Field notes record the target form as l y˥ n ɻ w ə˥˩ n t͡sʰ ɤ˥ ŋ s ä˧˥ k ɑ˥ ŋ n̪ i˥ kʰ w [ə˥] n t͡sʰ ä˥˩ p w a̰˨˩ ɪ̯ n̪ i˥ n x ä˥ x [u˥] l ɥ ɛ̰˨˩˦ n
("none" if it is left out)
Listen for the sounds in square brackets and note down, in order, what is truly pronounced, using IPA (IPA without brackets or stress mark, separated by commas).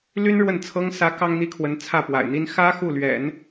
ə˧˥, u˥˩